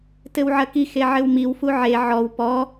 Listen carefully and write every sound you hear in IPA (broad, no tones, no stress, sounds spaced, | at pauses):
t ɘ w ʕ ɐ k i x e ʕ ɘ w m i w f u ʕ e ʕ ɔ w p ɔ